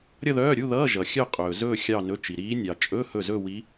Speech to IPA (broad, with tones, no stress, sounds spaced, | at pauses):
ɾʲ ʌ˥˧ ð œː˧˥˧ ɾʲ u˧˥˧ ð ʌː˧˥˧ ʒ ʌ˨ xʲ œ˥˧ qʼ ɵː˨ z ɵː˥˧ xʲ ɑ˥˧ n ɵ˧˥˧ t͡ʃ i˨ ɾ iː˧˥ nʲ ɑ˨ t͡ʃʼ ɵ˧˥˧ h ɵ˥˩ z ɵ˥˧ w i˧˥